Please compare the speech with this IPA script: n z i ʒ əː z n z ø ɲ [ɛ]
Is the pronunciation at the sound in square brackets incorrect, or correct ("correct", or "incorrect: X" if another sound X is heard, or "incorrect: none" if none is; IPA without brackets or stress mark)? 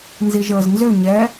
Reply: correct